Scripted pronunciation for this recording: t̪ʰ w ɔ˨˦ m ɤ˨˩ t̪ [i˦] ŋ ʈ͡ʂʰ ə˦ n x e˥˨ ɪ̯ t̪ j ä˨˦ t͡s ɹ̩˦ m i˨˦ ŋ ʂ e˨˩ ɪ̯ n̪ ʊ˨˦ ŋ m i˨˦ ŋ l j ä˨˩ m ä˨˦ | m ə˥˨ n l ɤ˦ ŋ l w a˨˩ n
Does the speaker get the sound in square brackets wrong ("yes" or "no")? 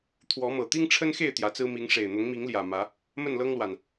no